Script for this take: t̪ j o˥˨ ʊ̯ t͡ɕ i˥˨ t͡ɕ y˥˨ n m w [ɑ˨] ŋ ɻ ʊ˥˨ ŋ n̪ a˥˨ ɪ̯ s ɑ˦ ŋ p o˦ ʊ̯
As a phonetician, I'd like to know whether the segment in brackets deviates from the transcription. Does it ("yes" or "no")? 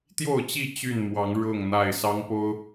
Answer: yes